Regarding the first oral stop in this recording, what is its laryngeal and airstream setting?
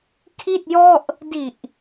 aspirated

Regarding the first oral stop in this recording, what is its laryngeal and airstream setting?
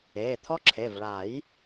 aspirated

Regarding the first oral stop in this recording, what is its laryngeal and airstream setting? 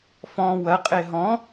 ejective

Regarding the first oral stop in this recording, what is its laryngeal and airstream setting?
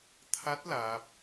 aspirated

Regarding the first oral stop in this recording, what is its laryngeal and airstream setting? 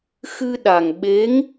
implosive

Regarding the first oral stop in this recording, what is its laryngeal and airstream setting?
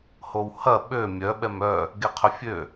implosive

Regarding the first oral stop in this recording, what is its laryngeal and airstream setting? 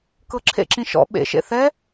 plain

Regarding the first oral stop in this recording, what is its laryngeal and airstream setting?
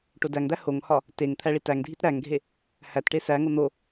plain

